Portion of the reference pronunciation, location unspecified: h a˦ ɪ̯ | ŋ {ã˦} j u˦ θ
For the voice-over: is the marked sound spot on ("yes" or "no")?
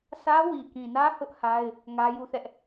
no